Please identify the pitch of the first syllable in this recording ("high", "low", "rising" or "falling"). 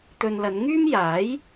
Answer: low